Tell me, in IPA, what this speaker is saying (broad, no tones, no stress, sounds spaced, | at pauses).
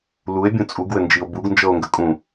l u e̯ bʲ ũ t͡sʼ u ɡ w ɘ n d͡ʒ i o̯ b u ɡ n d͡ʒ ɤ o̯ ŋ ɡ ə kʼ ũ